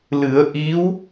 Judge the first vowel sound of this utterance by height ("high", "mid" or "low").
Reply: high